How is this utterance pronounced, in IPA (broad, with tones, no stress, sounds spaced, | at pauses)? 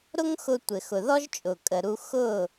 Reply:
ɾ ʊ˥ ŋ x ʊ˧ tʷ ɘ˩ x ʊ˩ ð ɔ˥ ʒ t͡ʃʼ ʊː˩ kʼ ə˩ ɾ u˧ x ʊː˥˩